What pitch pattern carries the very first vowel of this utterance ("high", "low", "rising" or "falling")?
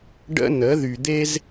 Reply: high